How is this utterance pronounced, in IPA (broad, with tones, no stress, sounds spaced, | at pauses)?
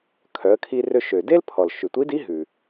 kʰ œ˩˧ ə̯ kʰ i˧ r ø˧ ʃ ø˩ d e˥ l pʰ ɔ˩ l ʃ ʉ˩ tʷ i˧˥ d i˧˥ ɦ ʉ˩